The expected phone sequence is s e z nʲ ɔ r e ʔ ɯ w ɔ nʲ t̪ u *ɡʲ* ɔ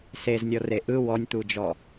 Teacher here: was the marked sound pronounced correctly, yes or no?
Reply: no